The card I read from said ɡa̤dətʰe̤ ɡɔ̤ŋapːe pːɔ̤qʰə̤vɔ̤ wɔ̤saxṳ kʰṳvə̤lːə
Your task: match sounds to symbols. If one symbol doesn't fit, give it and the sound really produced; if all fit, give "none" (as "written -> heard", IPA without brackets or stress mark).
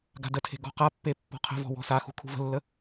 ŋ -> q